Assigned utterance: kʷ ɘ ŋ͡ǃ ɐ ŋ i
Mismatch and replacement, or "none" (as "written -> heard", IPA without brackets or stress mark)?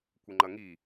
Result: none